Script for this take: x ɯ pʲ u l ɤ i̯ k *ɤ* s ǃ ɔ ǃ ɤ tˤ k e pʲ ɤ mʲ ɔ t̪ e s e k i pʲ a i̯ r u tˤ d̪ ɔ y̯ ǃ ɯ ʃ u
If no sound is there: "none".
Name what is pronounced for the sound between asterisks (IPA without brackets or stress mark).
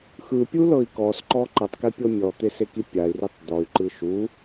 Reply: ɔ